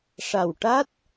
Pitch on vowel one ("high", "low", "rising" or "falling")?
low